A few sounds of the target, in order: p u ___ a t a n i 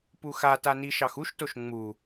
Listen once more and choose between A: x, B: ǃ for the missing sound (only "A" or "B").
A